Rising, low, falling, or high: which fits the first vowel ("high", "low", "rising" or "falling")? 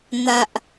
low